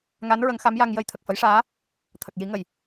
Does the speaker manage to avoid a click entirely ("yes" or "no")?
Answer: yes